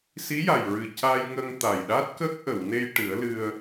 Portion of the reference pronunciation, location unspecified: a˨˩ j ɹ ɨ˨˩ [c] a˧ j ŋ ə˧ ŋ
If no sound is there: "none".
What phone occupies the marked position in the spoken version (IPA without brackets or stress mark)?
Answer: c